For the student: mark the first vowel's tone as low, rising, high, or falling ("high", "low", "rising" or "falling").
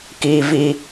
low